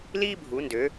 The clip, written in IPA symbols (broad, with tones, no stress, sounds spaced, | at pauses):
l iː˥ bʱ u˩˧ n d ø˩˧